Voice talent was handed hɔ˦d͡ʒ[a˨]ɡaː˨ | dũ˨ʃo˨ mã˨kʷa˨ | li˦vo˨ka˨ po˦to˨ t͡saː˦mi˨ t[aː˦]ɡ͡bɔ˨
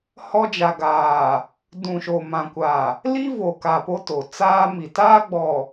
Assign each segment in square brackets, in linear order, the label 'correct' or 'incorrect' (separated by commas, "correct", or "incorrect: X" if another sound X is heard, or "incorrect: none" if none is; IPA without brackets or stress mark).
correct, correct